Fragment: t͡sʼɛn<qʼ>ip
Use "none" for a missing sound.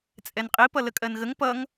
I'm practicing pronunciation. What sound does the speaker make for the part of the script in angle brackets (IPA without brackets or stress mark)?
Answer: qʼ